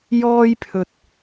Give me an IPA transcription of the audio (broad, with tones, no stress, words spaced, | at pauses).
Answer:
jɔː˥jpʰɵ˧t̚